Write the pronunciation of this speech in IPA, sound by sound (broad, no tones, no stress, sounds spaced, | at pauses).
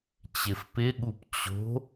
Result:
t͡ɕ ɪ f p ɪ ɠ u p t͡ɕ o̤